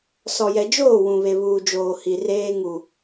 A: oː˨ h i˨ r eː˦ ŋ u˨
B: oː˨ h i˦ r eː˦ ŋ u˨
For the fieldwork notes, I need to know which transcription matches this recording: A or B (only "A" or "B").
A